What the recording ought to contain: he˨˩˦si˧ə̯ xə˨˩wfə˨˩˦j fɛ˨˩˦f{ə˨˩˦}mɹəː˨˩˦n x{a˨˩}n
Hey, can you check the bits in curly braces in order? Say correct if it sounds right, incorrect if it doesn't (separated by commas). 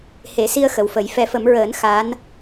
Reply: correct, incorrect